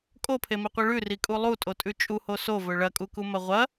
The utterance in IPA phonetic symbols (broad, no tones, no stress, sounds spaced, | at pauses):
kʼ o pʰ e m i qʷ i ɭ ʉ r i kʼ u lˠ u tʼ o tʼ ʉ t͡ʃʼ u h o s o v ɵ ɭ ɐ kʼ u k u m ɐ ʁʷ ɐ